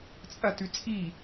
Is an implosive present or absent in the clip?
absent